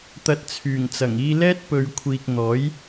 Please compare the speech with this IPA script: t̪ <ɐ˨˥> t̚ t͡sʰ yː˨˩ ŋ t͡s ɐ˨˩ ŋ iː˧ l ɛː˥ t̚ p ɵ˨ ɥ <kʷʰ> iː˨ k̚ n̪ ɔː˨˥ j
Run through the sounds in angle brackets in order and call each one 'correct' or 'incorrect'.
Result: incorrect, correct

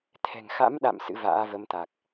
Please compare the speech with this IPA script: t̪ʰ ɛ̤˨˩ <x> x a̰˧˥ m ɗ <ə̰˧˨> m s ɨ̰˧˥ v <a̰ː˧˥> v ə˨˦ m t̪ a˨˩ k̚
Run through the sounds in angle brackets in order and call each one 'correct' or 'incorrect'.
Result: incorrect, incorrect, correct

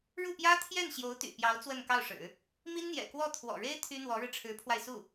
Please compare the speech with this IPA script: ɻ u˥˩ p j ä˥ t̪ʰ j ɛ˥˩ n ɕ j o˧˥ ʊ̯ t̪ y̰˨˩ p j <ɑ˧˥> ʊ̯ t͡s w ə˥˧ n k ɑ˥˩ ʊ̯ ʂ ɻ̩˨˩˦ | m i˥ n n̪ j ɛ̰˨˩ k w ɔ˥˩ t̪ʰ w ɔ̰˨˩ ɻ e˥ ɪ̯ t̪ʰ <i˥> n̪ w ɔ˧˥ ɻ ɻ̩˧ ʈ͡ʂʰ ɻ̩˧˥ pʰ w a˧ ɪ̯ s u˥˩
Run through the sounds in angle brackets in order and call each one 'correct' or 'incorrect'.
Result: correct, incorrect

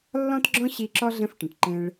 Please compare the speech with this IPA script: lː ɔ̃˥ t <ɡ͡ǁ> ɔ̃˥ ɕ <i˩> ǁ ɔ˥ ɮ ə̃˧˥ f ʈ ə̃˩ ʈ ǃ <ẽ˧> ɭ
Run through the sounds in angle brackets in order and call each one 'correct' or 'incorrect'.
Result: correct, incorrect, correct

